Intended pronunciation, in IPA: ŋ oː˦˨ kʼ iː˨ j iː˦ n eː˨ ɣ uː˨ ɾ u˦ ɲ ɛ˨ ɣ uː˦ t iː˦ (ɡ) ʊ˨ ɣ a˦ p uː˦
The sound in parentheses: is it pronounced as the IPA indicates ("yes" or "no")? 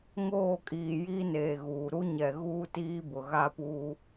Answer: no